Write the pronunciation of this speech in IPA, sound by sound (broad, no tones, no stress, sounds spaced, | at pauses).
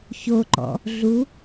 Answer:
ç o ǃ ɔ̰ | ɮ u